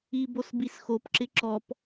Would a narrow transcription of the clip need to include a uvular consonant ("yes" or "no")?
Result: no